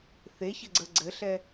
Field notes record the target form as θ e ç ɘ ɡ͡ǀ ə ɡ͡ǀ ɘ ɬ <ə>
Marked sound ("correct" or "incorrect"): incorrect